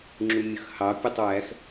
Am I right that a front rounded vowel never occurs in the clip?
yes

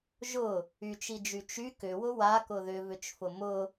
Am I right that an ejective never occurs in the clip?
yes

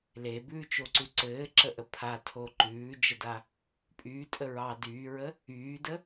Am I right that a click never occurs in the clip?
no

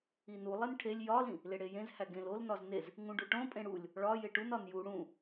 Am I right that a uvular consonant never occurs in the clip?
yes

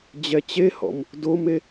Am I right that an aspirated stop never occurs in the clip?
yes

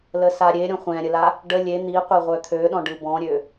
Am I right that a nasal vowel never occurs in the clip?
no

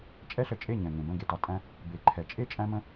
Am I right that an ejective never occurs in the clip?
no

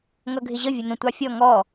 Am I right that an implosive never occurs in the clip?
yes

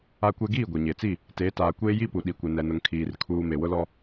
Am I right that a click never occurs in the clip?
yes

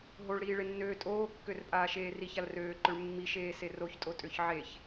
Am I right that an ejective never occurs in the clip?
no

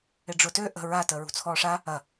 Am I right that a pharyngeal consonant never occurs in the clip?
yes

